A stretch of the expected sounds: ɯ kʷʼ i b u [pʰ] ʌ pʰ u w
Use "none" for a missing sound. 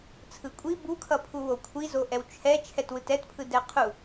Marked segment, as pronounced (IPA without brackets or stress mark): kʰ